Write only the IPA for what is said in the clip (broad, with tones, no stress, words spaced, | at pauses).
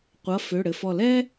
qʷʌ˩˧˩ fø˩˧˩ɽɘ˩fɔ˧˩ lɛ˥